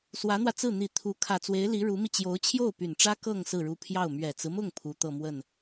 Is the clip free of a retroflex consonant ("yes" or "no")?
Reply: no